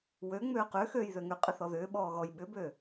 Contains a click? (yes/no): no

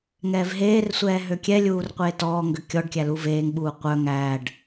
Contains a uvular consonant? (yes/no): yes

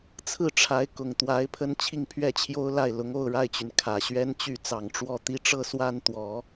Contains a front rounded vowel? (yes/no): yes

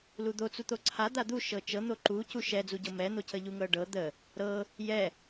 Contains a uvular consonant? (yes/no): no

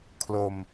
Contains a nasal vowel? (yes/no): no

